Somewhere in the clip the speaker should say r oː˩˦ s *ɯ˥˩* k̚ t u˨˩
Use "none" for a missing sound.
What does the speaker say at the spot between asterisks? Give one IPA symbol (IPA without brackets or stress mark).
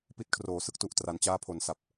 ɯ˥˩